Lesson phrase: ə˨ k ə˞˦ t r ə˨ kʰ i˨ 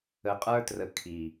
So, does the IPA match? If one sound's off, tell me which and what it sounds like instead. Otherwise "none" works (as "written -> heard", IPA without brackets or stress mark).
k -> qʼ